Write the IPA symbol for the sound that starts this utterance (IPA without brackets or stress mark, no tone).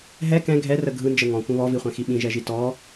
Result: ɦ